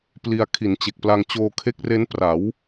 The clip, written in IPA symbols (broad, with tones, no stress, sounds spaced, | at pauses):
p l i˧ a̯ kʰ i˨˩ n t͡ɕ e˨˩ k̚ p l a˧ ŋ t͡ɕ oː˧ kʰ e˦˥ k̚ r e˦˥ n p r a˩˦ w